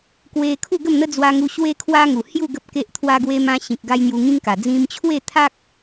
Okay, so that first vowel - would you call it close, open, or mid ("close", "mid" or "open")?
mid